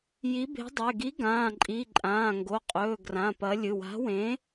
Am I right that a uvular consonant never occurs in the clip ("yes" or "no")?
no